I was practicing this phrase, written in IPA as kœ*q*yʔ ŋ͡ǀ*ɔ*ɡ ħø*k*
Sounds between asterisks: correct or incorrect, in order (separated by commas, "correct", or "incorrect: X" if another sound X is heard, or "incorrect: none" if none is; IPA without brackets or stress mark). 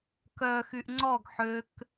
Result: incorrect: x, correct, correct